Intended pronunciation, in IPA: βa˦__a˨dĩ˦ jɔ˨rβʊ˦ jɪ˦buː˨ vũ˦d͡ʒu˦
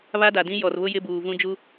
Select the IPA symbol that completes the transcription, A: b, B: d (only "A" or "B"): B